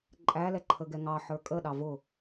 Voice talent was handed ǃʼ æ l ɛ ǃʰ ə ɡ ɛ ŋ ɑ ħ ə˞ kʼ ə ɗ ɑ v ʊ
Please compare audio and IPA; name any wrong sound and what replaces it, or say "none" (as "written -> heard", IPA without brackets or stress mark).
none